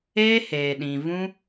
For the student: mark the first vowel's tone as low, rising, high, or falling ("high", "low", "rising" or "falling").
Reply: high